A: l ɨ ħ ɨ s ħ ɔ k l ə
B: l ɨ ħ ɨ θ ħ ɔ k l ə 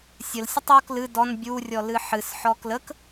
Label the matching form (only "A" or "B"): A